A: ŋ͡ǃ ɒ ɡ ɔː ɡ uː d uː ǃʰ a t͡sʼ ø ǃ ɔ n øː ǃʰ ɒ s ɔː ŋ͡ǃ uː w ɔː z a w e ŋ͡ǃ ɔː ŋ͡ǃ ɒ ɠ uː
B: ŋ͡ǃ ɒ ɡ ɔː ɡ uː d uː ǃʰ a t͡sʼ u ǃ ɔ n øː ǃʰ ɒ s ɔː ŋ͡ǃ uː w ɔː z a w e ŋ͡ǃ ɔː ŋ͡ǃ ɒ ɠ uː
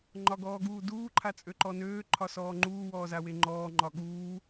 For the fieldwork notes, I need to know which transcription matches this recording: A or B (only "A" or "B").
A